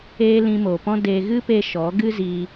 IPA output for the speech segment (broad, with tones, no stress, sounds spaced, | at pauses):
eː˦ l ĩ˧ m oː˨ p ɔ̃˦ d e˧ ɣ ɨ˦ p e˧ ʃ ɔ˨˦ ɡ ɨ˦ z i˧